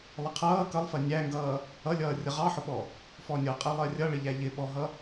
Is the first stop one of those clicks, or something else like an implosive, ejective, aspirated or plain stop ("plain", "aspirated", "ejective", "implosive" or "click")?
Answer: aspirated